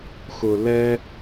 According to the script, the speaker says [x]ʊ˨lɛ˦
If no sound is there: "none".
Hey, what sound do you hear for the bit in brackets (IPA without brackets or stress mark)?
x